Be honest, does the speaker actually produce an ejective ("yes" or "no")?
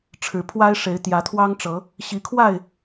no